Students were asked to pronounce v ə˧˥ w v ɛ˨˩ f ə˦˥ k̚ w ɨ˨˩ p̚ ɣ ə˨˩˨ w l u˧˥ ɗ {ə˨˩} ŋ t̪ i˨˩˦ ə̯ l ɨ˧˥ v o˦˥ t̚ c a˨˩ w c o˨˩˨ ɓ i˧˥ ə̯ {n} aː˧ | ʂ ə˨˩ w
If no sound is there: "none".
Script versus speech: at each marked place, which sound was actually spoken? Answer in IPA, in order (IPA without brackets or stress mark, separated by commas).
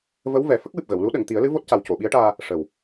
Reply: ə˨˩˨, ʈ